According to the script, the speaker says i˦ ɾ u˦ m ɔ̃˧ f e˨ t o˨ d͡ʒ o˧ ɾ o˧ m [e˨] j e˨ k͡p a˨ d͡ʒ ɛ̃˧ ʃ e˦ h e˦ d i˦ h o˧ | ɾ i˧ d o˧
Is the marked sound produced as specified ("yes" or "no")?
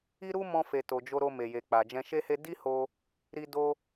yes